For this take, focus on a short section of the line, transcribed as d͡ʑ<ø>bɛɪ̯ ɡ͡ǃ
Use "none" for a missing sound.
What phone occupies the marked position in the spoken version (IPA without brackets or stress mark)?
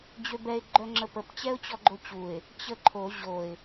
ø